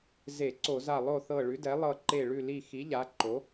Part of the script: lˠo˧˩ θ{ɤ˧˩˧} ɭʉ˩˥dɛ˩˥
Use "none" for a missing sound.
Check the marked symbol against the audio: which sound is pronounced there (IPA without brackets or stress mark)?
ɤ˧˩